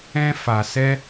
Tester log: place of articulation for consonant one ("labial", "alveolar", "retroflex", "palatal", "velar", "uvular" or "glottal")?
labial